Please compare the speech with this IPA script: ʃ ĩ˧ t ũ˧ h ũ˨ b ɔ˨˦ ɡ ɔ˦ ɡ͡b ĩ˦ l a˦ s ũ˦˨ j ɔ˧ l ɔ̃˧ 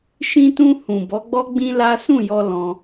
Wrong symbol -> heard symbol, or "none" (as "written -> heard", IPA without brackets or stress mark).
ɡ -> ɡ͡b